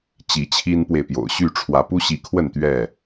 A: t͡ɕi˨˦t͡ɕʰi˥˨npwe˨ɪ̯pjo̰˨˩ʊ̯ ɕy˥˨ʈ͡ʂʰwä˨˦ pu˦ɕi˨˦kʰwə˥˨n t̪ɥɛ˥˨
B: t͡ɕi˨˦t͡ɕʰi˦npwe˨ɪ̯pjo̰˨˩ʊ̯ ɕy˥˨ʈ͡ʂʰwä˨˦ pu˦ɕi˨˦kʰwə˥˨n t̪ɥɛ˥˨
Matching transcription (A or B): B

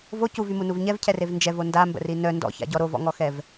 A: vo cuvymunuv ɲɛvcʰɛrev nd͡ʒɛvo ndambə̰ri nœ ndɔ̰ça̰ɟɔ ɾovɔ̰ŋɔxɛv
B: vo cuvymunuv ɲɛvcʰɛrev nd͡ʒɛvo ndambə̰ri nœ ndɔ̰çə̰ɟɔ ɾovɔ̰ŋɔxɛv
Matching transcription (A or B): A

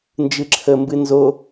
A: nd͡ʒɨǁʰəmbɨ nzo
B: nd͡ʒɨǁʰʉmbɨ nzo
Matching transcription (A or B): A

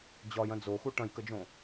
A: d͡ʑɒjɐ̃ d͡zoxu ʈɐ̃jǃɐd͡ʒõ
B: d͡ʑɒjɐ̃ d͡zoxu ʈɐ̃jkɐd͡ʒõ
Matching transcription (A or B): B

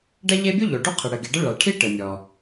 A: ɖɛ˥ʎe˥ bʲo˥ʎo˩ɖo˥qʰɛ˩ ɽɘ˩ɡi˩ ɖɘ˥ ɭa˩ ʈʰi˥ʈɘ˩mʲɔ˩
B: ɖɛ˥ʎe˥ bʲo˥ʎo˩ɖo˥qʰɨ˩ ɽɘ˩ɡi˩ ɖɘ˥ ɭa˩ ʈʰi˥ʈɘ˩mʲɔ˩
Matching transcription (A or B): B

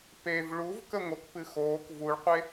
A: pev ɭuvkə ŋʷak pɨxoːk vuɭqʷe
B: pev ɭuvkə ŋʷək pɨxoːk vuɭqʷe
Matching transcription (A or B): B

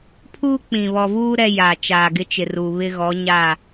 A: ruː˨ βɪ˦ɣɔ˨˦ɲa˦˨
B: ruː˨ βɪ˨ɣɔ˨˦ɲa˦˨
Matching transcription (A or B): A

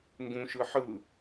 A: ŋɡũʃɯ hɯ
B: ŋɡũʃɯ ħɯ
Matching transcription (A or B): B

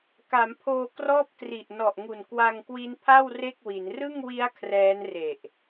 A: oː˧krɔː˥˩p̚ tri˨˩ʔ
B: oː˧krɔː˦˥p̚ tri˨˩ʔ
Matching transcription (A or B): A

